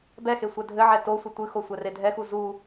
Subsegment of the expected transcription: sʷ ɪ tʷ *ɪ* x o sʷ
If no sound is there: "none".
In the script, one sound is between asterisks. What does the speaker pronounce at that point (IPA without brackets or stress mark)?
ɨ